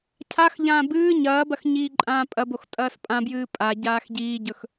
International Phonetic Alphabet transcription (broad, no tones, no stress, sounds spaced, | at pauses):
cʰ a x ʎ ãː b ɨː ɲ ɐː b ɐ x ɲ iː ǃʼ ãː pʼ ɐ b o x tʼ ɐː s pʼ ã b j ɨː pʼ a ɟ aː x ɟ iː ɟ ɵ x